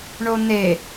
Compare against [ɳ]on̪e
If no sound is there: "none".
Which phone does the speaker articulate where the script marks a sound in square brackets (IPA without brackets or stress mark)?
ɳ